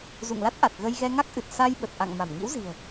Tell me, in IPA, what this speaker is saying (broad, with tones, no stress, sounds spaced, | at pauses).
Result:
z ṵ˧˨ ŋ l a˦˥ t̚ ʔ a˨˩ t̚ ɣ ə˧ j ɣ ɛ˧ ŋ a˦˥ k̚ ʔ ɨ˨˩ t̚ s a˧ j ɓ ə˨˩ t̚ ʔ a̰˧˨ ŋ m a˧˩ m ŋ ḭ˧˥ w z i̤˨˩ ə̯